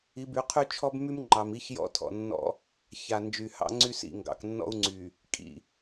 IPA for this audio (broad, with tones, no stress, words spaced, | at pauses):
i˨˦by˨˦qʰy˦ t͡ʃʰɔ˦bmy˦mŋ͡ǃɑ˨m i˦çjɔ̰˦tʰɔ̰˨nːɔ̰˦ | ça˨nd͡ʒy˨ hɑ̰˦ŋ͡ǀy˦sḭ˦˨ ŋɡɑ̰˨k nːɔ̰˦u̯ŋ͡ǀy˨ | kʼḭ˨